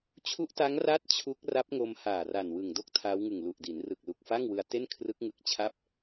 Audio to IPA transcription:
t͡ɕʰ u˦˥ ʔ t a˦˥ ŋ r a˥˩ t̚ t͡ɕʰ u˦˥ k̚ r a˦˥ p̚ ŋ o˧ m h aː˨˩ r a˨˩ n w ɯ˨˩ ŋ d o˥˩ k̚ tʰ aː˦˥ w ŋ ɯ˨˩ ŋ l u˨˩ ʔ d i˩˦ n r ɯ˨˩ k̚ l u˨˩ k̚ f a˥˩ ŋ w ɯ˧ a̯ t e˥˩ n kʰ r ɯ˦˥ k̚ ŋ ɯ˦˥ k̚ t͡ɕʰ a˥˩ p̚

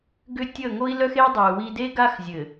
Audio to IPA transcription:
ɡ ʏ˦ tʲ ə˦˨ ŋ o˦ i̯ l œ˦ x e˦ dˤ i˨ u̯ w i˦ d e˦ ɡ a˦ x zʲ ɘ˨

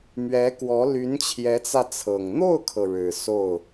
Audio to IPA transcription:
m ɥ ɛ˧˥ k w ɔ˧˥ l y˧˥ n t͡ɕʰ j ɛ˧˥ t͡s ä˧ t͡sʰ ɤ˨˩ ŋ n̪ o˥˩ ʊ̯ kʰ ɤ˩ ɻ ɻ̩˨˩ s o˥˩ ʊ̯

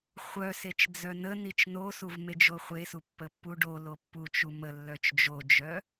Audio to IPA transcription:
χʷ œ s e t͡ʃ d͡z œ n ə n i t͡ʃ n o s u v m e d͡ʒ o χʷ e s u pː ə pː u ɖ o l o pː u t͡ʃ u m ə lː œ t͡ʃ d͡ʒ o d͡ʒ œ

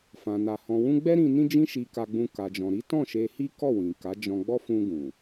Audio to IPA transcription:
f ã˨ n a˨ h ɔ̃˨ w ũ˧ ɡ͡b ɛ˦ ɾ ĩ˧ n ĩ˦ d͡ʒ ĩ˦ ʃ i˧ k a˧ ɡ͡b ũ˧ k a˨ d͡ʒ ɔ̃˨ ɾ i˨˦ t ɔ̃˦˨ ʃ e˧ h i˦ k ɔ˦˨ w ĩ˨ k a˨˦ d͡ʒ ɔ̃˧ ɡ͡b ɔ˦ f ũ˧ ɡ ũ˨

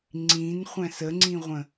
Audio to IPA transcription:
ŋ͡ǀ ĩ n χʷ æ̃ s ə ŋ͡ǀ ĩ ʁʷ ə̃

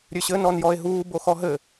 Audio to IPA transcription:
ɾʲ ø ɕ ɘ n ɔ n j ɔ e̯ ɦ uː b o x ɔ ɦ ɘ

